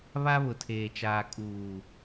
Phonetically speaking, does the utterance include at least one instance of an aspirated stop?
yes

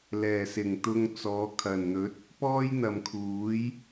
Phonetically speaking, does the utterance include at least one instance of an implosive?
no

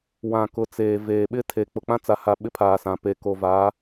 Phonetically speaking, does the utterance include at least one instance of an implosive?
yes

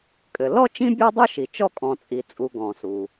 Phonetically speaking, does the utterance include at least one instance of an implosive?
no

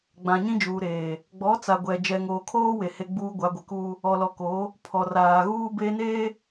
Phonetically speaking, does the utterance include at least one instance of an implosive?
no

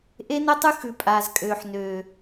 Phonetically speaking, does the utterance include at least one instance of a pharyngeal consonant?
yes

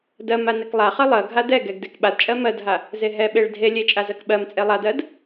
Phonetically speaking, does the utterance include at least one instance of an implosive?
yes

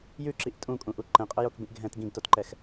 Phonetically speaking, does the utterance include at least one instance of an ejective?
yes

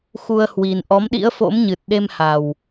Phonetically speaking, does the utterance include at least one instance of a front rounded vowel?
no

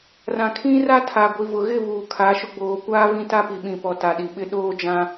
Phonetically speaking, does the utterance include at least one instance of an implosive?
yes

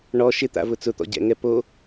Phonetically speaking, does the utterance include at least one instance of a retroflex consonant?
yes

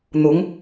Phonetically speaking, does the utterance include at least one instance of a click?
no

